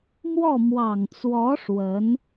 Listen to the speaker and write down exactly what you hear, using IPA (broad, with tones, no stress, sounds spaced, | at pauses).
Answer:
m w ɔ˥˩ m w ɑ˨˩ ŋ t͡s w ɔ˧˥ ʂ w ə˧˥ n